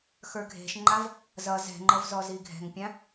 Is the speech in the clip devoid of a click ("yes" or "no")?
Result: no